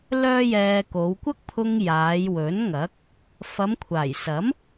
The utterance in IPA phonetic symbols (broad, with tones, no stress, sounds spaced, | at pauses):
l œː˥ j ɛː˧ k o˨˧ w kʷ ɐ˥ k̚ pʰ ʊ˧ ŋ j aː˨˧ j w ɵ˨˥ n ŋ ɐ˨˥ k̚ | f ɐ˨˧ m kʷʰ aː˨˩ j s ɐ˨˥ m